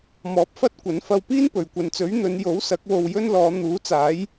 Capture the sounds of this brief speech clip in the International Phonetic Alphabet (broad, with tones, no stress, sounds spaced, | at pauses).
m ɔː˨˥ p̚ f ɐ˥ t̚ kʷ ɐ˨˥ n f ɐ˧ w p iː˥ n p ɵ˨˩ ɥ kʷ ɐ˨ n t͡s ɵ˨˥ ɥ n̪ ɵ˨˧ n j o˨˥ w s ɐ˨˥ k̚ w o˧ w j ɵ˥ n l ɔː˨˧ n̪ uː˨˥ t͡s aː˨˥ j